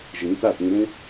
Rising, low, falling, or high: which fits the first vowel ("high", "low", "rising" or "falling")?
rising